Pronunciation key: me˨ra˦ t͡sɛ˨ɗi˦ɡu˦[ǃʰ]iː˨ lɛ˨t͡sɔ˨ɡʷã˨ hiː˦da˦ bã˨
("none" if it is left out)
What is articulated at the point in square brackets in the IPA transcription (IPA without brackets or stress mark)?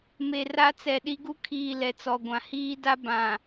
kʰ